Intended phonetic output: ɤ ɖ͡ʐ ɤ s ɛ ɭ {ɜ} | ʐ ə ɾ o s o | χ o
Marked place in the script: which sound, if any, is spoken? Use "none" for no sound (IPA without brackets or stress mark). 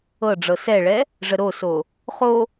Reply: ɛ